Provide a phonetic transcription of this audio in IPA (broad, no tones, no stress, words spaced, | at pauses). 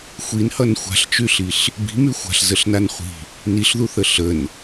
xʷinhʌn xʷa̤ɬt͡ʃyɬiɬ | bi̤my xʷa̤ɬzəɬnan χʷi̤ | niɬðuθə ɬən